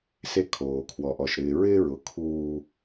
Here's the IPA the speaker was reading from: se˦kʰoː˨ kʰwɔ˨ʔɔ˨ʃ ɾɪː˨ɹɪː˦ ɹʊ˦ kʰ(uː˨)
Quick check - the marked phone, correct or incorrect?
incorrect